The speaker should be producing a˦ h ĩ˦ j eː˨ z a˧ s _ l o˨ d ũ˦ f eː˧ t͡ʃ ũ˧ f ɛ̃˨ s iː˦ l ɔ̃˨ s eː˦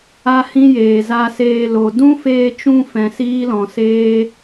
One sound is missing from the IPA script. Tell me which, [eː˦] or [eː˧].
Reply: eː˧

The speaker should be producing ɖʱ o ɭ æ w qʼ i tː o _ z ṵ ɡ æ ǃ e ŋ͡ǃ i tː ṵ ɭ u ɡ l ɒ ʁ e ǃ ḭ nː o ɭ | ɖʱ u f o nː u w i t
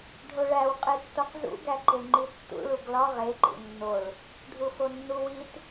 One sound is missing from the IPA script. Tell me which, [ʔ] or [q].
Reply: q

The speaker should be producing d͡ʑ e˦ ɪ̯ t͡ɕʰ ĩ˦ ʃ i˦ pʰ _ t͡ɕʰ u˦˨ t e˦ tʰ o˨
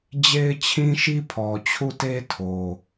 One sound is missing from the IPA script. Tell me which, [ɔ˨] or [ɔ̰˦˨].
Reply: ɔ˨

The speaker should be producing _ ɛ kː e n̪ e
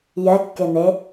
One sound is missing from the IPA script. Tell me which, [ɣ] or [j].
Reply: j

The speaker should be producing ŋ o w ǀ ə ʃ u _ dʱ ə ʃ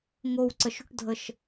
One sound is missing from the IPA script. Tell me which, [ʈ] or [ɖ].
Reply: ʈ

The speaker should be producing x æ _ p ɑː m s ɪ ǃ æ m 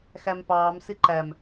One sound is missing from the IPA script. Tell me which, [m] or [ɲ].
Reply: m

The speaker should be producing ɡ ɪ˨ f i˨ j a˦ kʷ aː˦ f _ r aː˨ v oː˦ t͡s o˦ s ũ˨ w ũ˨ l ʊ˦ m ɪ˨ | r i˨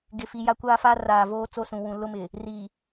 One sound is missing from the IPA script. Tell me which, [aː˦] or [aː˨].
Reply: aː˦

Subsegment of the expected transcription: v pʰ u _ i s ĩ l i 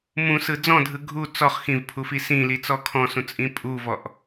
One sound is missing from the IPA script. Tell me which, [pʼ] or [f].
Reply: f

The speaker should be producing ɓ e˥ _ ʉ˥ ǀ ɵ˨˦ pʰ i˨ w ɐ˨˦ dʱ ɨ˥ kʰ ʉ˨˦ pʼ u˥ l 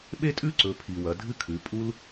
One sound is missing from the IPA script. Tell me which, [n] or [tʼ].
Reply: tʼ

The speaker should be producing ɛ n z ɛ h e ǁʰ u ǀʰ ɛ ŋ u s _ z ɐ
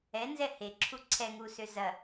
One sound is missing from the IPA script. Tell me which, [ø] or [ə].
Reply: ø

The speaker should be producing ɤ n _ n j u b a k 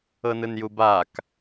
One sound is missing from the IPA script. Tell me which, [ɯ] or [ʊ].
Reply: ɯ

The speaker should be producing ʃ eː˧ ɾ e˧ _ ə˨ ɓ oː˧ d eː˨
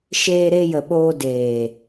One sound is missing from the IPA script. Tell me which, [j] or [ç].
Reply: j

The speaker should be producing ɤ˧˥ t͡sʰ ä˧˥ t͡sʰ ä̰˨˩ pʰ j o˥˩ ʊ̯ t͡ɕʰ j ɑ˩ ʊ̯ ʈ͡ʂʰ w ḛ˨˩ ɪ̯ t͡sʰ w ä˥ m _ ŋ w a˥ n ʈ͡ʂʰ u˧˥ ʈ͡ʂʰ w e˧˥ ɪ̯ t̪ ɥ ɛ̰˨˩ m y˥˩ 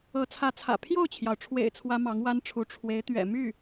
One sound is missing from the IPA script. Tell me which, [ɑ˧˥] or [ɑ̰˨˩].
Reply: ɑ˧˥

